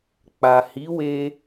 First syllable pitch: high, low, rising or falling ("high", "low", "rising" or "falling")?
low